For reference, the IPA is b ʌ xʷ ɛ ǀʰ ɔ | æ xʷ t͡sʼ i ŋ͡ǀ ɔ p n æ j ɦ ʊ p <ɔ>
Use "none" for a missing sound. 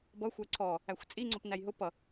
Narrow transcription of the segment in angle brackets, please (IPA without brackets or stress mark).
ʌ